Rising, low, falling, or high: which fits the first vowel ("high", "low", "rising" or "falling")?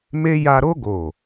high